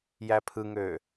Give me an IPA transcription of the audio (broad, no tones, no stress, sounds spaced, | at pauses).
j æ pʰ ɯ ŋ øː